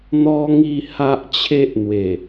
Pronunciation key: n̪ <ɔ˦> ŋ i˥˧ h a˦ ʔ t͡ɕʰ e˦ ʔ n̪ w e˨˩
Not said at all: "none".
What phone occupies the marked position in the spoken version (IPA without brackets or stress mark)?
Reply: ɔ˦